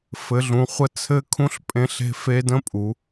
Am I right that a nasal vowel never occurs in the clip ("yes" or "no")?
no